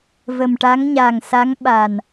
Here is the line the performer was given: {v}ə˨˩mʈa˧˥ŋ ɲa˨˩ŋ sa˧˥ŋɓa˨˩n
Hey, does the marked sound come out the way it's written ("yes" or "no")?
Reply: yes